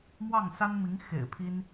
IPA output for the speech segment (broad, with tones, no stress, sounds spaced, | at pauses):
m w ɑ˥˩ ŋ s a˥ n m i˧˥ ŋ x ḛ˨˩ ɪ̯ pʰ i˥ n